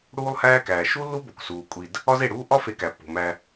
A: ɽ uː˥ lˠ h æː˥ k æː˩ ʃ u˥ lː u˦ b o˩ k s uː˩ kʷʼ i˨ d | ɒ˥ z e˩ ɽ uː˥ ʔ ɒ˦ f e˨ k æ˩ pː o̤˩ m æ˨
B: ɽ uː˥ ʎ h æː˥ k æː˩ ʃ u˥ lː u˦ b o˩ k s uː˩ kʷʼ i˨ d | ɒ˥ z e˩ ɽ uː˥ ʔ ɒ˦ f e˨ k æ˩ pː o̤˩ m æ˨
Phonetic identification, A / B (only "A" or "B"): A